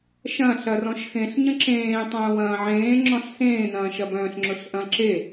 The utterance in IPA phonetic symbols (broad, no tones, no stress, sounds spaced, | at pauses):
ʃ ɐ̃ ɬ ɐ r ɔ̃ ʃ x ẽ ɬ ɲ ə̃ ǁ ẽː tˤ œ̃ː w ɐ̃ː ʕ ẽː ŋ͡ǁ ɔ̃ ɬ s ẽː n ɐ̃ː ʃ ɐ b œ̃ː ɬ ŋ͡ǁ ʊ ɬ ʔ ɐ̃ ǁ e